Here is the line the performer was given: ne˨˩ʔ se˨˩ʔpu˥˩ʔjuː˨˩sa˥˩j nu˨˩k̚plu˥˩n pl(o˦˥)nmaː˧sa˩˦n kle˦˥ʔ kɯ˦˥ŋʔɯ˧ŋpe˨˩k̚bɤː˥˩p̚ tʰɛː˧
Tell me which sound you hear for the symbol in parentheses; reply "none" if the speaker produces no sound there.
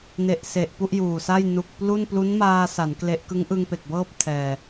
u˦˥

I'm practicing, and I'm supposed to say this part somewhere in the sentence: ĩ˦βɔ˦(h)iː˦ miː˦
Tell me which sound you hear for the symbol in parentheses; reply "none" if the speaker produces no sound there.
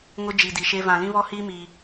h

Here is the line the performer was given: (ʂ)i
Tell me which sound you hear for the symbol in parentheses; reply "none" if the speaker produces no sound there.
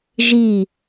ʒ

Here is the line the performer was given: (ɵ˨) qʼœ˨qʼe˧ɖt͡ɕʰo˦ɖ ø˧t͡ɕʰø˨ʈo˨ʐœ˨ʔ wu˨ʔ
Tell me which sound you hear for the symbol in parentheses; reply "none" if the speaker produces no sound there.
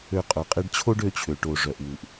ø˨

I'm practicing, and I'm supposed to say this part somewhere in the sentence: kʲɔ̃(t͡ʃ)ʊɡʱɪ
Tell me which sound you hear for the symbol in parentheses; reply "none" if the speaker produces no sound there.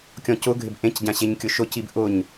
c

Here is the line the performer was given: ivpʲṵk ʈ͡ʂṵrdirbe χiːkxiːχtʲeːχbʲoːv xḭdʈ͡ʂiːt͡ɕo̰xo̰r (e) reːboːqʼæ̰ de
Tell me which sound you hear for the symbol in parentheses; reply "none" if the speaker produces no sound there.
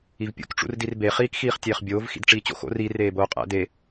i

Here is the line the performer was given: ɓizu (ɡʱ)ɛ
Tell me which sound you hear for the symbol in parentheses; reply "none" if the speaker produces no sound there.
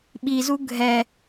ɡʱ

